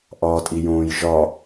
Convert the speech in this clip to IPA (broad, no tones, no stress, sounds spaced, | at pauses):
ʔ ɒː tʼ i j õː j ʒ ɒ